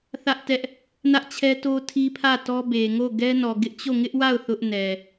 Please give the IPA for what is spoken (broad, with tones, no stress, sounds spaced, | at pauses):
θ ä˦ ʔ t ɛ˦ ʔ | n ä˦ ʔ t͡ɕʰ ɛ˦ t o˦ tʰ i˦ pʰ ä˦˨ t ɔ˦ b e˨ ŋ o˦˨ ɡ ɛ˦ n ɔ˨ ɡ ɪ˦ ʔ t͡ɕ o˦˨ ŋ ɪ˦ ʔ w a˦˨ ʊ̯ θ ʊ˦ ʔ n ɛ˨